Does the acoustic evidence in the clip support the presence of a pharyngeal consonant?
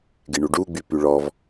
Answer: no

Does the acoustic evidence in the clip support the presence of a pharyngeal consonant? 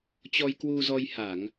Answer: no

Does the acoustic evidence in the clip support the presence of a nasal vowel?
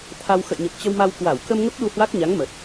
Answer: no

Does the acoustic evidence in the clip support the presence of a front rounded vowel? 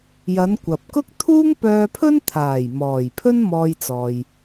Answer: yes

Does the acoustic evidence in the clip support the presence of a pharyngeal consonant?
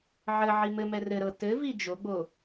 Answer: yes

